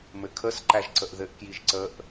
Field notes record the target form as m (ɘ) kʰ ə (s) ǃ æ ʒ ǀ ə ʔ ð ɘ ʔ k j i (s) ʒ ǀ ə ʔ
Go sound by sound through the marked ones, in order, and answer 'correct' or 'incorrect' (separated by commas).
correct, correct, incorrect